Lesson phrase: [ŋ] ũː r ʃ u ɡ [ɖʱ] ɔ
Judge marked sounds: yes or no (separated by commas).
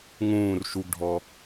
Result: yes, yes